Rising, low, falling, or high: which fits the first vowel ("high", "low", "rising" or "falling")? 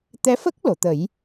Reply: rising